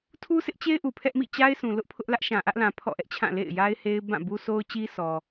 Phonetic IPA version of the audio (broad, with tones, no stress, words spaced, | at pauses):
tʰu˦sʰɪ˦ʔt͡ɕe˦ɪ̯ ʔu˨pʰɛ˦ʔmḭ˦˨ t͡ɕa˦ɪ̯sʰũ˨ lʊ˦ʔpʰʊ˦ʔ lä˦ʔʃã˨ʔä˦ʔlã˨ pʰɔ̰˦˨ʔɛ˦ʔt͡ɕʰã˦˨ lḛ˦˨ɪ̯ja˦ɪ̯ he˦ɪ̯ bã˦˨bu˦so˦ʊ̯t͡ɕi˦ sʰɔ˨